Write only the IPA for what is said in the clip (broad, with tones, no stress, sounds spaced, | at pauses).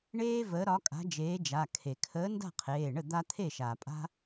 ɳ eː˦ v əː˨˥ ɾ ɒ˨˥ kʼ a̤˨˥ d͡ʒ eː˨˥ d͡ʒ a˩˧˩ kʰ e˩ kʰ əː˨˥ n d a̤˥˩ qʰ eː˩˧˩ ɳ ə˥˩ d̪ a˦ t̪ʰ e˥˩ ʃ aː˩ pʼ a̤˦